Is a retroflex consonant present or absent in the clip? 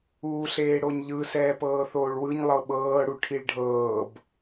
present